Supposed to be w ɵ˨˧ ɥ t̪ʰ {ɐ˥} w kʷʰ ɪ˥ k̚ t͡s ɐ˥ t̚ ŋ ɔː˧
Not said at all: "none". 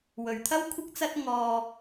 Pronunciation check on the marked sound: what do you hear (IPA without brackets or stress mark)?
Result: ɐ˥